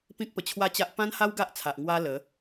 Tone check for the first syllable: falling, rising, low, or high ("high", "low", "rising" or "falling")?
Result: high